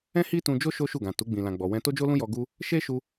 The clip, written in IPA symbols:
ɛ̃˦hi˦tũ˧d͡ʒo˦ ʃo˦ʃu˦˨ɡã˨ tu˨˦ ɡ͡bĩ˧lã˧ɡ͡bɔ˧wɛ̃˦ to˦d͡ʒo˦lũ˦jɔ˧ ɡu˧ | ʃe˦ʃu˧

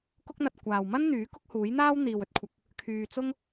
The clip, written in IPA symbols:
kʊ˥k̚n̪ɐ˧t̚ kʷaː˨wmɐ˥nn̪yː˨˥ kʊ˥k̚huː˨˥jn̪aː˥w n̪iː˨wɵ˥t̚kʷʰɐ˧k̚ | kʰyː˧t͡sʊ˥ŋ

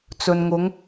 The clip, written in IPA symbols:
t͡sɵ˨nŋʊ˨˧ŋ

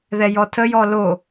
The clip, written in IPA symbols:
ðɛjɔtʰə jɔlo

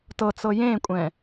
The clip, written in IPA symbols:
tɤt͡sɤ jẽkʷʼɛ̃

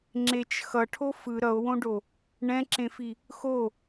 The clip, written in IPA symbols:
ŋ͡ǁet͡ʃ xʌʈʰo fɯ ɾʌo̯wõɖo | ɳɛ̃ǁẽfi | xo

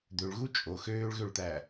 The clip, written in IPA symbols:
d̪øɭɣu t͡ʃʼo xøːɭɣøɭt̪æ

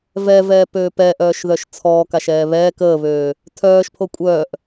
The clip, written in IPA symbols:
vɛvɛːpøːp ɛʔœːʃðœʃ t͡sʰɔːkaʃɛː βɛːk əːβøː | tʰœːʃpʰo kʷʼœːʔ

